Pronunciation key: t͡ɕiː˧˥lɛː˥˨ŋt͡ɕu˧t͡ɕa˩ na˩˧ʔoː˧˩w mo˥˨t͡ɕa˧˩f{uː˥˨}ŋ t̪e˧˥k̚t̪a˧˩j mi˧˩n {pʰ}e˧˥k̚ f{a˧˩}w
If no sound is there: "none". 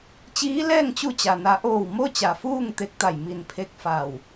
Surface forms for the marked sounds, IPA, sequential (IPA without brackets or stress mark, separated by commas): uː˥˨, pʰ, a˧˩